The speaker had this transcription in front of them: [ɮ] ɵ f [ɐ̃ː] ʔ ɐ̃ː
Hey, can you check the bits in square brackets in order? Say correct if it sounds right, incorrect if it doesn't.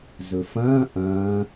incorrect, correct

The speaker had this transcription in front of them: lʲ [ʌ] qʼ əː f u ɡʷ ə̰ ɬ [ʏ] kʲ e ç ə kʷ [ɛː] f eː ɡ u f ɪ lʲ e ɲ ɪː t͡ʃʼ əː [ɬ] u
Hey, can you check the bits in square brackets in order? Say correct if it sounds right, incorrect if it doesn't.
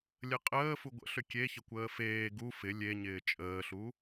incorrect, correct, incorrect, correct

